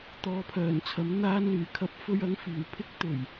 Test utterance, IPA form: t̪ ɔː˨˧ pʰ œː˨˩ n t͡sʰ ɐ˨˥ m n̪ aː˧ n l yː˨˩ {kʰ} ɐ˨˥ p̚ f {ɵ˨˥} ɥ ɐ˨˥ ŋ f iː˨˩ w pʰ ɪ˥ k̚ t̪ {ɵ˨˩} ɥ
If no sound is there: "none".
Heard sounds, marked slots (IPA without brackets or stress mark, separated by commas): kʰ, ɵ˧, ɵ˨˩